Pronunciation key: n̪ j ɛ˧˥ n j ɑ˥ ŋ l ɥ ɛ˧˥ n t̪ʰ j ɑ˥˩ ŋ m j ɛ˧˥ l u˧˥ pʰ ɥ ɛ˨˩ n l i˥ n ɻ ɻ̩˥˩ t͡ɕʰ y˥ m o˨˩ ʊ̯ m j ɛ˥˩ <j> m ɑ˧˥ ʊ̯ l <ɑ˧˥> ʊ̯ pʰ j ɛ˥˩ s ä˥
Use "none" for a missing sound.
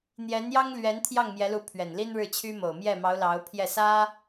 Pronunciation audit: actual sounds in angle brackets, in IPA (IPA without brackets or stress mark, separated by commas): none, ɑ˧˥